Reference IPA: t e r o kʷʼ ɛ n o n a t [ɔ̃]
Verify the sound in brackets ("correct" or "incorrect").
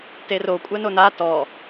incorrect